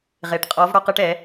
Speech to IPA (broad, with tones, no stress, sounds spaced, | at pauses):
ʁ e˨ ʈ qʼ ɔ˨˦ v ɽ ɔ˧ q ɯ˧ ʈ ɛ˨˦